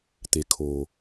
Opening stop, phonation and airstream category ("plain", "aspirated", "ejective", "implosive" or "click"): plain